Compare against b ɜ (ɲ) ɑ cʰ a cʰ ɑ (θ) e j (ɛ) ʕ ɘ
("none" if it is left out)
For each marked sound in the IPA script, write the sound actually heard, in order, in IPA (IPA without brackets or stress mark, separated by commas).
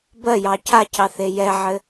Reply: j, θ, ɛ